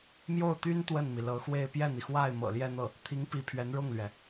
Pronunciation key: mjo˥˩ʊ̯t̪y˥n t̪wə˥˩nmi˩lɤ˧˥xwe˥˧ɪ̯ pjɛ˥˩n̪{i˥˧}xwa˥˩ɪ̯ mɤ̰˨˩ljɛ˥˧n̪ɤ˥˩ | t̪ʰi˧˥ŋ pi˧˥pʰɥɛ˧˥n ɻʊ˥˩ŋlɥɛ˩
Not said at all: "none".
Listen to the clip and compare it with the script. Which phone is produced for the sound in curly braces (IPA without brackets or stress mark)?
i˩